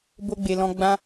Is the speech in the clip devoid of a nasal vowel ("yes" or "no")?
no